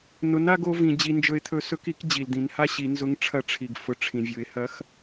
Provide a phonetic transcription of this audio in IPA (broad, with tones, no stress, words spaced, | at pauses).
nʊ˧˥na˥ɡ o˧˥vĩ˧ d͡ʑi˧nd͡ʒɵ˧ɪ̯t̪ʰɵ˧˥sɵ˧˥k i˧˥kd͡ʑi˩ld̪ĩ˩˧nha˥ ɕi˩˧nzʊ˧˥ŋ ʈ͡ʂʰɐ˧˥ʈ͡ʂʰi˩ɡ fʊ˩ ʈ͡ʂʰĩ˩vʲʊ˩˧ɪ̯hɐ˧˥x